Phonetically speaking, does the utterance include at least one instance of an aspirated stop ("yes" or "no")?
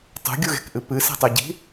no